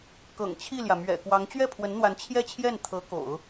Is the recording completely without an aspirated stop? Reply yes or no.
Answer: no